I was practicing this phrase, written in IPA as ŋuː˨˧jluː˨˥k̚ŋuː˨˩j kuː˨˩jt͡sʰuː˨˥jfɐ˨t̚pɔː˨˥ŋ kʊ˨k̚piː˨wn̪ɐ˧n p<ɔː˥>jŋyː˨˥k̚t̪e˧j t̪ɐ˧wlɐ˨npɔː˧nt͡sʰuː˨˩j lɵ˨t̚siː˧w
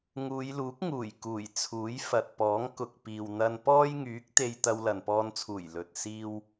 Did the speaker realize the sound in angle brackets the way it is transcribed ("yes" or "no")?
yes